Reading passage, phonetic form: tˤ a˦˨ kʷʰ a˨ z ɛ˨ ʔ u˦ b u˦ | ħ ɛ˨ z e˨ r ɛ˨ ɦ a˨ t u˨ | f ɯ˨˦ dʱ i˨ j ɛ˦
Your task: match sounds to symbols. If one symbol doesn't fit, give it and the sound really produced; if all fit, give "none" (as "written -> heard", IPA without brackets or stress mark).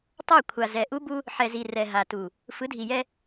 e˨ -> i˨